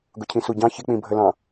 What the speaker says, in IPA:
ɡʊcʰĩsuɟɑ̃ çɪk͡pĩbʱəlɑ̃

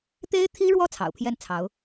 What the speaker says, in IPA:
t̪e˥ɪ̯t̪ʰi˥ɻwɔ˥˩ t͡sʰɑ̰˨˩ʊ̯pʰjɛ˥˩nt͡sʰɑ˧˥ʊ̯

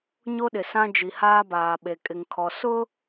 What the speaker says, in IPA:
ɲo˦ɗɪ˨ sã˦ d͡ʒi˨haː˦baː˨ɓe˨ kʼɪ˨ŋkʰɔ˨ sʊ˦

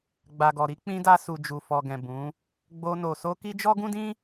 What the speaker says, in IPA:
ɡ͡ba˨ɡɔ˨ɾi˨˦ k͡pĩ˧da˧su˨ d͡ʒu˨fɔ˨ɡɛ̃˨ bũ˨˦ | ɡ͡bo˧no˨ so˧ ki˦d͡ʒɔ˦ ɡũ˦dĩ˦

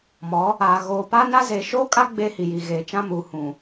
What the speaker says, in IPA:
mɔ˨˦ | a˨ ɣoː˨pa˦na˦ zeː˨ʃoː˦kʼa˦ ɡ͡be˦hi˨ji˨ɣeː˨ t͡ʃã˦muː˨hũ˨

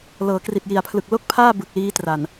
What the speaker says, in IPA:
lɤː˩˦kri˨˩t̚ji˨˩a̯pʰlɯ˨˩k̚ lo˥˩k̚pʰaː˥˩ bɯ˨˩k̚liː˦˥tra˨˩n

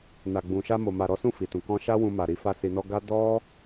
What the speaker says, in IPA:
na˨ɡ͡bũ˨ʃa˧ mo˨ma˨ ɾɔ˨˦sũ˦˨ fi˨tũ˨ kɔ̃˧ʃa˦wũ˧ ma˨ɾi˨˦ fa˦si˧nɔ˦ ɡa˦ dɔ˦

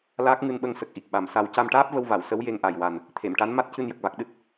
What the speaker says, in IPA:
laː˦˥k̚ŋɨ˧nɓə˧ŋ sə˨˩k̚ ʔi˨˩k̚ ɓa˨˩msa˧w ca˧mʈaː˦˥p̚və˧wva˨˩˨w sə˧˥wje˧ŋʔa˨˩jwa˨˩n | t̪ʰe˨˩˨mʈa˧˥n ma˦˥t̚cɨ˧njə˨˩k̚va˨˩k̚ ɗɨ˦˥t̚

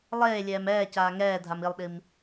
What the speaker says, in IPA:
lˠeːlʲɛːm ɛː caːŋɛː dʱamilˠɗim

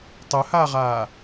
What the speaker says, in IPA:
tˤʊhaːʁaː

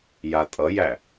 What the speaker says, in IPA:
jatʼʌjæ

